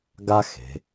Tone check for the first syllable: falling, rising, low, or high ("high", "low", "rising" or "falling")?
high